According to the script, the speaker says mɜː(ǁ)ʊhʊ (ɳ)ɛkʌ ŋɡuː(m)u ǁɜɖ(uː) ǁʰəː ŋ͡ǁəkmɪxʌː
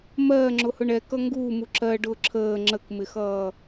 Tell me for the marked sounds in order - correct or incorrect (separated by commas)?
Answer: incorrect, correct, correct, incorrect